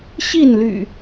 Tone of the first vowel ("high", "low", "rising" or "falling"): falling